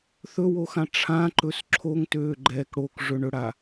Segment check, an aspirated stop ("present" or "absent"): present